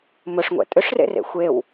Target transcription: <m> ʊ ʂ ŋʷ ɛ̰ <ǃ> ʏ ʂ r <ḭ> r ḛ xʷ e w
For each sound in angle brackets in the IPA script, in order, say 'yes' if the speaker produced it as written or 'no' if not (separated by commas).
yes, no, no